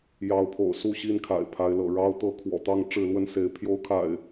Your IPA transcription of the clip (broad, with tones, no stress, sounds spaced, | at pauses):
j ɑ˨˦ ʊ̯ pʰ o̰˨˩ ʊ̯ s u˥˨ ɕ i˦ n kʰ a̰˨˩ ɪ̯ pʰ a˨˦ ɪ̯ l ɤ̰˨˩ ɻ ɑ˦ ʊ̯ t̪ ɤ˥˨ kʰ w ɔ̰˨˩ t̪ ɑ˥˨ ŋ ʈ͡ʂ ɻ̩˥˨ l w ə˥˨ n s e˨˦ ɪ̯ pʰ j o˦ ʊ̯ kʰ a̰˨˩ ɪ̯